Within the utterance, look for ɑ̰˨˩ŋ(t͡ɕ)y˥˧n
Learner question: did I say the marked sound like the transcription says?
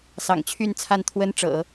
no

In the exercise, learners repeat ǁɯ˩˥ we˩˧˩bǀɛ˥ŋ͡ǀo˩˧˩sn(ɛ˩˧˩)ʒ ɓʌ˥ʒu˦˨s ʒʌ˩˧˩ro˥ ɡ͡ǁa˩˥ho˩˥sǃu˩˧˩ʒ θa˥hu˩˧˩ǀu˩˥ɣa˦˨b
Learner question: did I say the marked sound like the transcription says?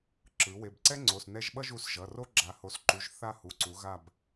no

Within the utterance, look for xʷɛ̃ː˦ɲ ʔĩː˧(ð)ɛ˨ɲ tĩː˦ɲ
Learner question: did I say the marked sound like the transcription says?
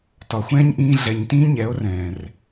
no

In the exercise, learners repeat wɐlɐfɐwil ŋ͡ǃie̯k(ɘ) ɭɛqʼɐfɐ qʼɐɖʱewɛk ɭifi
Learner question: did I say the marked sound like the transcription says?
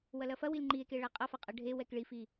no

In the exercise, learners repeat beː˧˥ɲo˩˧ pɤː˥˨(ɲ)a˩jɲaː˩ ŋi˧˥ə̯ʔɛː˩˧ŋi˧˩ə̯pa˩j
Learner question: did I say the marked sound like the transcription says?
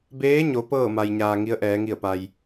no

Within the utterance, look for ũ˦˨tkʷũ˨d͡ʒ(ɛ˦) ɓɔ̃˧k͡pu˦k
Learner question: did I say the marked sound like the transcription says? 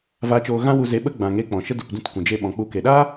no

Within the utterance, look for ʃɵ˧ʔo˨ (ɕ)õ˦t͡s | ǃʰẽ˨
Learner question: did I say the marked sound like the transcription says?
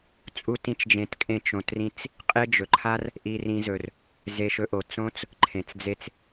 no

